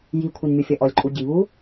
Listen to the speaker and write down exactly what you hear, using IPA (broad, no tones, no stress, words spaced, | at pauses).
jikʷʰinmʲofʲɐ ʔɔlʲǃʼuɟiβu